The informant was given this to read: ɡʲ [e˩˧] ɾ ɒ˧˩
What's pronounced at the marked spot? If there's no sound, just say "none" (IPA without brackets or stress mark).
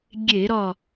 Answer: e˧˩˧